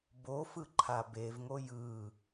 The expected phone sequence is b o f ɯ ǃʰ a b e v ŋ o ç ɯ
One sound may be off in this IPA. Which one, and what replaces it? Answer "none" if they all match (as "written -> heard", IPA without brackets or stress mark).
ç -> j